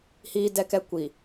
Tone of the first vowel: high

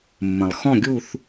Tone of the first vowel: low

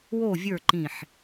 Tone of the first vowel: falling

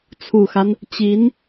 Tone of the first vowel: low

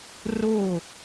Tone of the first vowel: falling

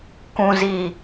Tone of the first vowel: low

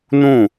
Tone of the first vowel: falling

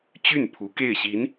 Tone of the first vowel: falling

